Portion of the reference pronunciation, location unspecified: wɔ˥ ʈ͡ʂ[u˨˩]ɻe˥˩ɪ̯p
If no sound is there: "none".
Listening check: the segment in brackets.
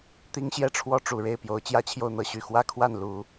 u˨˩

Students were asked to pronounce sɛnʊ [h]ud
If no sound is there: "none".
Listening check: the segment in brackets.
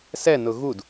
ɣ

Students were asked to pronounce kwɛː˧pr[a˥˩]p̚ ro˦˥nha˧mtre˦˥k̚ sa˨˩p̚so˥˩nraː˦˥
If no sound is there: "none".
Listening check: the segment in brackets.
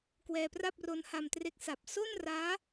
a˥˩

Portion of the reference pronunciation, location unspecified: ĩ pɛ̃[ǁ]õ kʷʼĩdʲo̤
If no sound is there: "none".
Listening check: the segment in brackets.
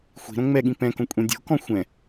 k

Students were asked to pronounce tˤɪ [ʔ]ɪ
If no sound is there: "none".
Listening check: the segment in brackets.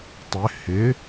h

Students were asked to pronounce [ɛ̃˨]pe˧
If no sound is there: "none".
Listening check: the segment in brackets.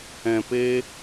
ɛ̃˨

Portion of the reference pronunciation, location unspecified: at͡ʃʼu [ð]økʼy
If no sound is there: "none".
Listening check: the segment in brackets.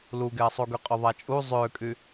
zˤ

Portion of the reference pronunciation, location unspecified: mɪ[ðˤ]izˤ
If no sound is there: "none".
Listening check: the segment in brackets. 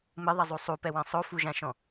ðˤ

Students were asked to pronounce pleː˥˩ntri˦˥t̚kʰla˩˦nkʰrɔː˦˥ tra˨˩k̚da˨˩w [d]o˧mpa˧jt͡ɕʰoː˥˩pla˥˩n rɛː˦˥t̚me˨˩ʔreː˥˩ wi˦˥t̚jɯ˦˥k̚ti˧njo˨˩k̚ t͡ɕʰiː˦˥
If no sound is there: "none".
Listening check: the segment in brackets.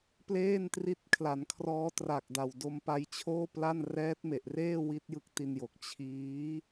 d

